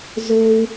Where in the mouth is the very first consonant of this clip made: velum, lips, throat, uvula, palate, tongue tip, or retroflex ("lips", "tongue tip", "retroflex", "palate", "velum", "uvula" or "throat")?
tongue tip